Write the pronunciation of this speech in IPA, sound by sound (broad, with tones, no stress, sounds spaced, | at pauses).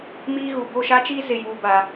m iː˦ ɣ u˨ b o˦˨ ʃ a˦ t͡ʃ iː˦ z ɪ˨ j uː˨ b a˨